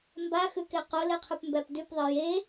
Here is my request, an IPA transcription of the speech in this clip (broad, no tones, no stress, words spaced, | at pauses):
mbaxʉke qoleqʰʉpmbæp dʉpðˤe je